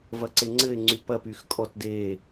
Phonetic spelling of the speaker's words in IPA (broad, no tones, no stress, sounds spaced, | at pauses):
v ɐ ǀ e ŋ͡ǀ ɘ ɪ̯ ŋ͡ǀ y p ɐ p y x kʼ ɔ t d e